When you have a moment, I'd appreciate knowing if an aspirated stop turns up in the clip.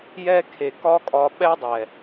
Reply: yes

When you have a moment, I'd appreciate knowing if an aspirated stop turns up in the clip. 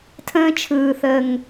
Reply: yes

